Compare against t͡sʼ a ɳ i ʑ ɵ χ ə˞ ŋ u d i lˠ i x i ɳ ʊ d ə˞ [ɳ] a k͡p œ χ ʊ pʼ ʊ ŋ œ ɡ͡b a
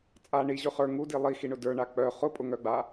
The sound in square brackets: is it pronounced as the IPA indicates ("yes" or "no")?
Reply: yes